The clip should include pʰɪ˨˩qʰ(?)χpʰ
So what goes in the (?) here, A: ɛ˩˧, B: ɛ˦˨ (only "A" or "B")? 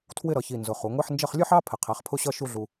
A